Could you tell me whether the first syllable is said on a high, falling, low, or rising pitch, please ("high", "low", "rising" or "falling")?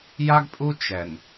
high